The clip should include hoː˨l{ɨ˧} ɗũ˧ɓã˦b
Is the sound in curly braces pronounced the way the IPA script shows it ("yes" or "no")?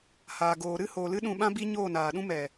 yes